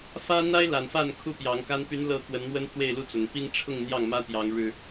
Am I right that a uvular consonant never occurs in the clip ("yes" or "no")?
yes